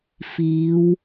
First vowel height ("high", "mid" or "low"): high